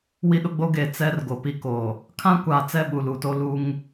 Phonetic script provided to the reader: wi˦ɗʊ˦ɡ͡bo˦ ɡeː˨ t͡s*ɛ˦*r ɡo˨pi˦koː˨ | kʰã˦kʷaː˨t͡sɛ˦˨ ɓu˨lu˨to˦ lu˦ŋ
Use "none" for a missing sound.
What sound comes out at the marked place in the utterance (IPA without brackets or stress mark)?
ɛ˦